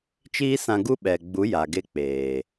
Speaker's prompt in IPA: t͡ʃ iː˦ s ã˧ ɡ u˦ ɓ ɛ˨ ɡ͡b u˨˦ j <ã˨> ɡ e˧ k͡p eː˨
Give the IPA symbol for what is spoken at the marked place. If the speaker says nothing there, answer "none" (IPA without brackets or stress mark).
a˨